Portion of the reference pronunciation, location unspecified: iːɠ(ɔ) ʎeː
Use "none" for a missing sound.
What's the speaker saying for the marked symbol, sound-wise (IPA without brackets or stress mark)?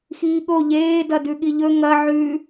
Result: o